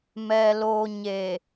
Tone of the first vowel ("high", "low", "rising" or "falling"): low